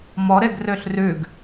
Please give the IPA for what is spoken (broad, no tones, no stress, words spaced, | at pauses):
mɔ ɾeɡrøɬrʉɡ